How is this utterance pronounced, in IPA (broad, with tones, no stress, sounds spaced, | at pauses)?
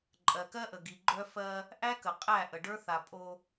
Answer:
ǃʼ ɜ˨ k ɜ˦ ʔ ə˨ ɡ i˨ ɡ͡ǃ œ˦ f ɜ˦ | ʔ æ˦ k ə˨ qʼ æ˦˨ ʔ ə˨ ɖ ə˞˦ θ a˨ pʼ o˦